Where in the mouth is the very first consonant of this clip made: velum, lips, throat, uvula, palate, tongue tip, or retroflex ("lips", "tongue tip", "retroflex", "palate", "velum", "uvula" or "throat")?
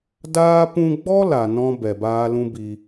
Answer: tongue tip